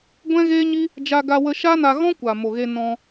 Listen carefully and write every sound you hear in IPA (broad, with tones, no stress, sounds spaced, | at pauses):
ɡʷ ɛ̃˦ ɣ eː˦ ɲ i˦ | d͡ʒ a˧ ɡ a˧ w ə˧ ʃ a˦ n a˧ ɣ ɔ̃˦ kʷ a˨ m o˨ ɣ e˧ n ɔ̃˧